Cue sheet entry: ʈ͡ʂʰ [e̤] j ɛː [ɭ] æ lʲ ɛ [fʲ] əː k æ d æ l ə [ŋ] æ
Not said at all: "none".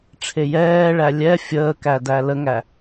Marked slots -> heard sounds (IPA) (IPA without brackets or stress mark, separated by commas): e, ɭ, fʲ, ŋ